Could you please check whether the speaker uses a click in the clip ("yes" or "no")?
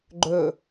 yes